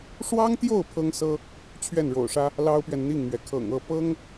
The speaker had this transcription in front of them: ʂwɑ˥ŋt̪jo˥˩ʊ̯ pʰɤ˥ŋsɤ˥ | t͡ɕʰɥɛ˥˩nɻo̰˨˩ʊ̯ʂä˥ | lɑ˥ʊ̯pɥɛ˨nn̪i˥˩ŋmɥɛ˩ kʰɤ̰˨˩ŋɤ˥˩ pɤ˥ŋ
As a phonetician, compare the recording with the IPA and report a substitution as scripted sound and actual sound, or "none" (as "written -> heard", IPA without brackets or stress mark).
none